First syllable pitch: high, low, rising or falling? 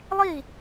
falling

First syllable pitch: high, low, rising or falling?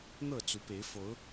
falling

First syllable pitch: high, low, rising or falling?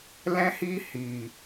high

